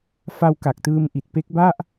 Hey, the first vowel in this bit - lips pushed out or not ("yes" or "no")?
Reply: no